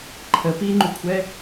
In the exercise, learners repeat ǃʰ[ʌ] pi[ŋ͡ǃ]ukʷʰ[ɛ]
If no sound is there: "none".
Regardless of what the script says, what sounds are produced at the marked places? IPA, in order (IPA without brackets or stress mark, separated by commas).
ə, ŋ͡ǃ, ɛ